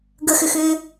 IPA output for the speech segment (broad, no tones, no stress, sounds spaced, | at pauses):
ɡ ə x ʏ x ʏː